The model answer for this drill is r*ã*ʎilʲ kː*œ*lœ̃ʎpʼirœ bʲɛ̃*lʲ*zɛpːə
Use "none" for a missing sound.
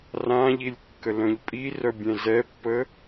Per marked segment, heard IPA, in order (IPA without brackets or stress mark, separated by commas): ã, ə, none